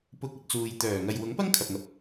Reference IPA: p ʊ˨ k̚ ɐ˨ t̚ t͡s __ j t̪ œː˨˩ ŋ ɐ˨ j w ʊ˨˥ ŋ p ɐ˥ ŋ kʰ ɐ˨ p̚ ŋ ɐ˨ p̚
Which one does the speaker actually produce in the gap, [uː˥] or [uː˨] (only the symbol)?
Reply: uː˨